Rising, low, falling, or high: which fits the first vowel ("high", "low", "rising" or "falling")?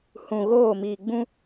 low